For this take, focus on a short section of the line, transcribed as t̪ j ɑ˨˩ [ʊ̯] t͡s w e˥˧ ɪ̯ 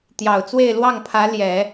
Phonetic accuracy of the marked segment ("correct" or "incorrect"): correct